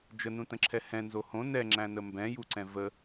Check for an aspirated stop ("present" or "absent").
present